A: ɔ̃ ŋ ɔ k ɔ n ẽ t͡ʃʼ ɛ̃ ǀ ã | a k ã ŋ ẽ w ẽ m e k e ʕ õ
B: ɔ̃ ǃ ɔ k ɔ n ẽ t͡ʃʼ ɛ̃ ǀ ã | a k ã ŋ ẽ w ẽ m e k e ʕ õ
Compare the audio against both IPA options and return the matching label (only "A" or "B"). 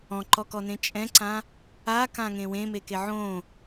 B